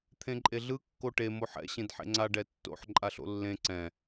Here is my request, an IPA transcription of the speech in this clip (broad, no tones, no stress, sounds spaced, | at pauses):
t̪ʰ ẽ ǃʼ e ɮ ɯ kː o ʈ e m o ħ ɛ̰ ɕ ẽ d ħ ḛ ŋ͡ǀ a ɖ ɛ tː o̰ ħ ǃʼ a ɬ o̰ lː ẽ ǀ ɛ̃